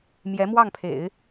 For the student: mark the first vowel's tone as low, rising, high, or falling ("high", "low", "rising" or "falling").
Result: rising